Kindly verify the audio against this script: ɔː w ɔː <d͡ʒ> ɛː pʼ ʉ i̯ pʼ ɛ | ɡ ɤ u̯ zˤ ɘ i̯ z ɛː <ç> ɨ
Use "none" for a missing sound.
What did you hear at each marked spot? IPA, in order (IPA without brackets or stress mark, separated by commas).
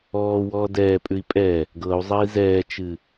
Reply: d, t͡ʃ